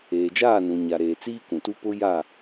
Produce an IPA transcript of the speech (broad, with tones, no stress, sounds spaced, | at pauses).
eː˨ d͡ʒ aː˦˨ n ũ˨ ɲ a˨ ɾ eː˨ t͡s iː˦ k ũ˨ t u˦ p ʊ˦ j a˦˨